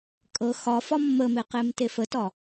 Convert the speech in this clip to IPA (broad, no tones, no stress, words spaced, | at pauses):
kʼɤ xɒfɒ mːəme qemtefətɒ